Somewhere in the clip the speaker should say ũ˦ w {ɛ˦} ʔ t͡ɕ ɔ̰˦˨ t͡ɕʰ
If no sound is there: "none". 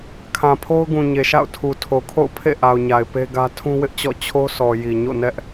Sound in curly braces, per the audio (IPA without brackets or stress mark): ɪ˦